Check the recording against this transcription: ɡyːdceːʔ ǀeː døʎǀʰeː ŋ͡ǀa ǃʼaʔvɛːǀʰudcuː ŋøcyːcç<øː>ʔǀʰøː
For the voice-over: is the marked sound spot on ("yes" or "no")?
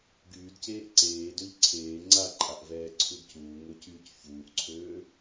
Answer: no